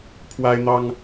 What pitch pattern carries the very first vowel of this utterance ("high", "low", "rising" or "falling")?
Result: high